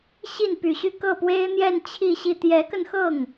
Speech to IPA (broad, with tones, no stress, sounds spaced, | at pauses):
ɕ i˥˩ n p y˨˩ ɕ y˥˧ k ɤ˥˩ p w e˥ ɪ̯ n̪ j ɛ˥˧ n t͡ɕʰ i˥˧ ɕ i˥˩ t̪ j ɛ˧˥ k ə˧ n x ɤ˥˩ ŋ